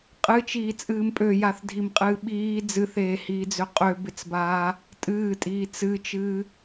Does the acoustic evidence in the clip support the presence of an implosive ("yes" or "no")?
yes